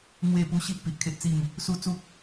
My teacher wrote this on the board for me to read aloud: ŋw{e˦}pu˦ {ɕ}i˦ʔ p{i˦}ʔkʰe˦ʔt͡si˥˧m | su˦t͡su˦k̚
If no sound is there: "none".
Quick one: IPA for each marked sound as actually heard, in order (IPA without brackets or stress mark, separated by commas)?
e˥˧, ɕ, i˨